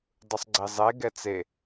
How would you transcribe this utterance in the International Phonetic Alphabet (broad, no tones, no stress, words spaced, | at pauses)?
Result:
dˤɯsˤɡ͡ǀizˤe ɡɛt͡se